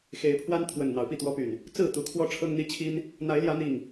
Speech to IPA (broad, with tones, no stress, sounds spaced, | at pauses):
x e˨˦ ɪ̯ pʰ w a˦ n t̪ʰ w ə˨˩ n n̪ ɑ˨˦ ʊ̯ p i˥˨ t̪ w ɔ˦ p y˨˩ n | t͡s ɹ̩˥˨ t̪ u˨˦ kʰ w ɔ˦ ʈ͡ʂʰ ɤ˦ ŋ n̪ i˦ t͡ɕʰ i˦ n | n̪ a˨˦ ɪ̯ l j ä˨˦ n̪ i˨˩ ŋ